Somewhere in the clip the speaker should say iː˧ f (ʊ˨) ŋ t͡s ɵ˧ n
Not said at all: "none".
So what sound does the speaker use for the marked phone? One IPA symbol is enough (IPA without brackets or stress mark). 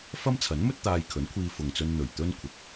ʊ˨